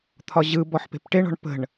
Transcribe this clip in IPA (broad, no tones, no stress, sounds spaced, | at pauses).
t̪ʰ ɒ ʑ ɯ b ɔ ħ p e̤ p ʈ e ɳ ɔ̤ ɳ p ə̤ ɳ